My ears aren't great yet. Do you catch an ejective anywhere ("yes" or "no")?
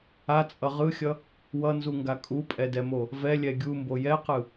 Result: yes